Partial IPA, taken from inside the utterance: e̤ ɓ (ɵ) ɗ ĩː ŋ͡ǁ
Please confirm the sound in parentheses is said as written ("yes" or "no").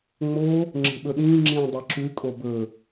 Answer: yes